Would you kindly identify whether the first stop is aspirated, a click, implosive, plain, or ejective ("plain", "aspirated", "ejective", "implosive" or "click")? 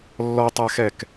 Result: plain